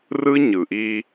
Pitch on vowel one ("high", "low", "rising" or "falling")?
high